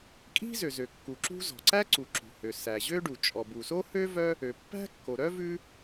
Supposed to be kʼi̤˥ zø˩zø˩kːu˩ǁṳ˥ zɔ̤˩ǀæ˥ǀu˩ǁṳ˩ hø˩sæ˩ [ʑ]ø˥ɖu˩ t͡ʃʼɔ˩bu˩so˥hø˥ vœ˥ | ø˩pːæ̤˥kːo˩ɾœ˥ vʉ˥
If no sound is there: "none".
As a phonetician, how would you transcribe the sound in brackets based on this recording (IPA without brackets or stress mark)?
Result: ʑ